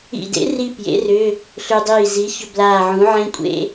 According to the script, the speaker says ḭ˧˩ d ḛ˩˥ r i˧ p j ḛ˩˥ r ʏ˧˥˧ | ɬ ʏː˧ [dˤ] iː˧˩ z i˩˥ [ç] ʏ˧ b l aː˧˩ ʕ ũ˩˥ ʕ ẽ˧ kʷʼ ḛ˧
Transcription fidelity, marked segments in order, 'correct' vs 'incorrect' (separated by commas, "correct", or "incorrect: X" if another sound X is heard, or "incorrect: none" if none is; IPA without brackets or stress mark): correct, correct